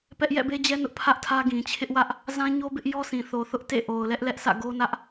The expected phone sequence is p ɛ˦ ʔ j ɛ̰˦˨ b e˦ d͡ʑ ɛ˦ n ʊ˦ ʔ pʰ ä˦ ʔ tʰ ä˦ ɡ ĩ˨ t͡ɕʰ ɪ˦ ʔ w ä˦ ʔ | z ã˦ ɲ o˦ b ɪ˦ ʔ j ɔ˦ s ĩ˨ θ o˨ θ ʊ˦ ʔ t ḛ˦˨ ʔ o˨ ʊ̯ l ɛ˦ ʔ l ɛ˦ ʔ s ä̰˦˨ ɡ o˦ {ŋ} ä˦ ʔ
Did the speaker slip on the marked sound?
yes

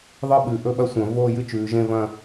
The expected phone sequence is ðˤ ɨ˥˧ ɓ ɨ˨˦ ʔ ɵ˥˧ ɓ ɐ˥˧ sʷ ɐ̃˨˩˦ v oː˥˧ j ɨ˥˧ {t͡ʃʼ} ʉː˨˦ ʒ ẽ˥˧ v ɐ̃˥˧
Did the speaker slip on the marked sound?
yes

